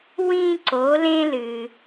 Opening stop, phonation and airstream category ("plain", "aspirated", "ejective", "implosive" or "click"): click